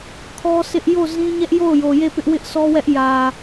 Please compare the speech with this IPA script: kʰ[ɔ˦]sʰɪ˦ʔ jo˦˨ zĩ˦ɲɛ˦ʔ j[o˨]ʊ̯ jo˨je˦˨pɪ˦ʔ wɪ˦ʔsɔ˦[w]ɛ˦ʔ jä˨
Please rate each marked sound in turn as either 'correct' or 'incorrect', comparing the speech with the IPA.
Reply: correct, incorrect, correct

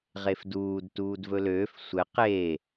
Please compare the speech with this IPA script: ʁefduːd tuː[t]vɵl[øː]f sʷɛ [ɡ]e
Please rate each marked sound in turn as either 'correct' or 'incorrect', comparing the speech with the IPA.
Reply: incorrect, correct, incorrect

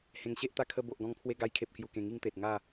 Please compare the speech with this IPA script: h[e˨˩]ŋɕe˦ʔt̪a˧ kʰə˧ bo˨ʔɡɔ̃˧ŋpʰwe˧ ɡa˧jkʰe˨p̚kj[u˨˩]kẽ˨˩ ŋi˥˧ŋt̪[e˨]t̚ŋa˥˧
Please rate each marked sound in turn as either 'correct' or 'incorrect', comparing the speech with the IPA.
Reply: incorrect, correct, correct

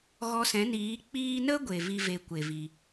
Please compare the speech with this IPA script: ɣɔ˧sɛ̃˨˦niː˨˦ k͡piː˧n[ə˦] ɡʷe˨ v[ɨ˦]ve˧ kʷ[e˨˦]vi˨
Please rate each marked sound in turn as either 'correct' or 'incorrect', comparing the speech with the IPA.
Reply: correct, incorrect, incorrect

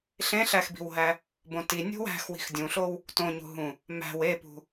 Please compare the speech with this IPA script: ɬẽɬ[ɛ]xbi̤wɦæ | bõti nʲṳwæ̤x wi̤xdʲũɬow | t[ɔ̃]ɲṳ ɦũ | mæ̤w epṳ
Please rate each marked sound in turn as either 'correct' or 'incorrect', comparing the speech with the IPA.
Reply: incorrect, incorrect

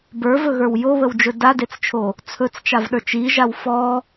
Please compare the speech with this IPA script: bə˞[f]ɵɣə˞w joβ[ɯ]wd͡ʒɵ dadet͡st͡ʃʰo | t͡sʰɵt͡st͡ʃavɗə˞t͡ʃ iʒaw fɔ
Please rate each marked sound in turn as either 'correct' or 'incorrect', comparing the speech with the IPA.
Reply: incorrect, incorrect

